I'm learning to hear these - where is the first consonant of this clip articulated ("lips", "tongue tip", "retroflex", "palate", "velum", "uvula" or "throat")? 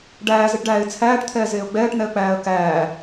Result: retroflex